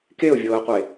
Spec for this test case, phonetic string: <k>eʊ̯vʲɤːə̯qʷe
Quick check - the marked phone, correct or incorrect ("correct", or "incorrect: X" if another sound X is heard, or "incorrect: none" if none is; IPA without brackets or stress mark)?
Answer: correct